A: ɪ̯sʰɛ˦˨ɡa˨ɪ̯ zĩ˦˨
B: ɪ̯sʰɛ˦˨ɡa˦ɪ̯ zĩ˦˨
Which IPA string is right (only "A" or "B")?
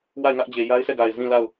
A